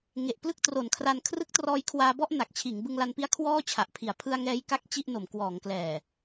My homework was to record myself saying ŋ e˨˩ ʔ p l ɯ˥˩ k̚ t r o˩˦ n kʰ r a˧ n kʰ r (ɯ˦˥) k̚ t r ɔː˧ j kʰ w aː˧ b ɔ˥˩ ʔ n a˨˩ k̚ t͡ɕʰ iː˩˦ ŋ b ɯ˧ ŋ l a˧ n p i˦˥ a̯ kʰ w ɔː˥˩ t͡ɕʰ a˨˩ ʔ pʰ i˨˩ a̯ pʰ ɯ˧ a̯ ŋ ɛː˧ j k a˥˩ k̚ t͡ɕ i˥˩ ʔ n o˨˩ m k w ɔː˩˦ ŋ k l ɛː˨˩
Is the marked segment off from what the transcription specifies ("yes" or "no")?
no